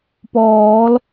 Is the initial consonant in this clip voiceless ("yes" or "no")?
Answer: yes